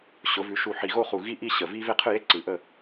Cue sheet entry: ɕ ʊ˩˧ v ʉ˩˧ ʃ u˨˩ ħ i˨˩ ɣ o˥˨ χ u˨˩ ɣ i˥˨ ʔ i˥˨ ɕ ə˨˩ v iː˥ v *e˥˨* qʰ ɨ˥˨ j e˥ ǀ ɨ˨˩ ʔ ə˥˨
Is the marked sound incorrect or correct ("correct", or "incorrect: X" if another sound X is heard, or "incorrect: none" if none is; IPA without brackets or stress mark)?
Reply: correct